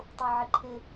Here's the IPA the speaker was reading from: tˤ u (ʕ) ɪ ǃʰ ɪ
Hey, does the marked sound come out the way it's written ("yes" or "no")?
yes